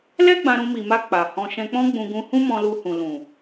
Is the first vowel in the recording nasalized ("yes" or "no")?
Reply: no